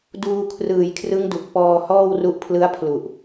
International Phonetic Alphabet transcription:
duː˧kʰrɯː˨˩jkʰrɯ˦˥ŋdu˨˩k̚ pɔː˧hɔː˥˩wru˦˥ʔpʰlɯ˦˥a̯ pʰlu˨˩ʔ

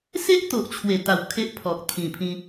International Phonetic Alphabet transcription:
se˦ʔt̪o˨ʔt͡ɕʰwe˨˩ t̪a˨˩w kʰe˦ʔpʰɔ˨k̚t̪ʰĩ˨˩pʰĩ˧

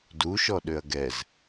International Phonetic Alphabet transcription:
duʃɔ ɗøɐ̯ɡɛz

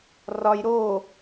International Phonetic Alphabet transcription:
rɒj ɾo

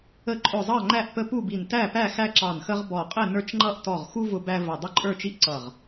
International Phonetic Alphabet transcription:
ə˧˩ ǃʼʊ˧˩ zˤɑ˥˨ŋ͡ǃæ˥˨ʔpə˦ pu˥˨bi˧˩n tæ˥˨pæ˥˨xæ˦ ǁɑ˧˩nxə˦ʁ bɔ˧˩qʼɪ˥˨nə˞˦t͡ʃŋ͡ǃʌ˥˨ʔ tɔ˧˩ʁxu˦ vʊ˦bæ˦ və˧˩ dˤə˥˨ǃʼə˞˥˨t͡ʃi˥˨ʔ ǀʌ˧˩ʁ

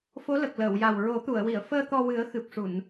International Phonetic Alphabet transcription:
fo˧˥lə˨˩k̚ləː˨˩˨w ja˨˩wɹo˨˩˦t̪u˨˩˨ə̯wi˨˩˨ə̯ fəː˧ t̪ɔ˧wɨ˨˩˦ə̯xɨ˨˩p̚ʂu˨˩˨n

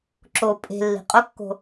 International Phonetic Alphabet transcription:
ǁo pʼe̤lːi̤ qʼokːo̤

